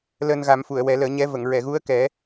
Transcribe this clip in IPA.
l əː˧ n ɣ a˨˩˦ m f u˨˩˨ ə̯ w ɛ˨˩˦ l əː˨˩˦ ɲ ɛ˧˥ v ə˨˩˨ ŋ ɹ ɛ˨˩˨ ɣ u˧˥ ə̯ k ɛ˨˩˦

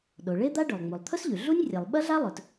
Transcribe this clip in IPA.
ɗ o˩ ɭ e˥ d̪ a˥ ɖ ɵ˩ lˠ ŋ͡m u˩ lˠ t̪ʰ ɵ˥ s ʎ ʉ˩ ɮ u˥ nʲ rʲ ɐ˩ lˠ ɓ ɐ˥ ɮ a˥ lˠ ɵ˩ t

